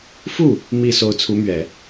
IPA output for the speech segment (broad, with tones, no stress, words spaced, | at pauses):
fu˥˩ | mi˨˩ so˧˥ʊ̯t͡sʰu˧˥mɥɛ˨˩˦